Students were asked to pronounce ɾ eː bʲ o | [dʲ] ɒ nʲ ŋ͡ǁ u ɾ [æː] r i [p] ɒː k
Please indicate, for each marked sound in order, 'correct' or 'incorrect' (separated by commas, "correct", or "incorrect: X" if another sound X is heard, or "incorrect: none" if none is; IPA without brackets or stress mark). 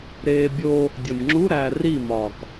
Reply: correct, correct, incorrect: m